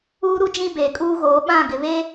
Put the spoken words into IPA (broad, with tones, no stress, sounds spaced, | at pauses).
uː˦ ɾ u˦ d͡ʒ ĩ˦ b eː˨ kʼ uː˦ ɣ oː˨˦ ɓ ã˦˨ ɡ ɪ˨ β eː˦